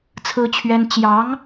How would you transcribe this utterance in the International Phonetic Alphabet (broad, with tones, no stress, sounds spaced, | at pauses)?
t͡sʰ ɹ̩˥ t͡ɕʰ ɥ ɛ˥ n t͡ɕ j ɑ˧˥ ŋ